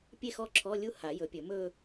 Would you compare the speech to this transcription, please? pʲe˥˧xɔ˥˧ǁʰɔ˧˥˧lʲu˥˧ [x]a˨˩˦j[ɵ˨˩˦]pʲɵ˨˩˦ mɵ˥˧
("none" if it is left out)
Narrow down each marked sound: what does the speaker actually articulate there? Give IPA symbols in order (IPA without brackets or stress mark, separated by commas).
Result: h, ɵ˨˩˦